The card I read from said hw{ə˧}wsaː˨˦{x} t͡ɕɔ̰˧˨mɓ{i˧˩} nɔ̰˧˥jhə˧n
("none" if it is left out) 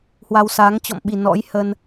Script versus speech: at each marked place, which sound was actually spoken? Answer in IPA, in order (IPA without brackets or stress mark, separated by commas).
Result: a˧, ŋ, i˧˩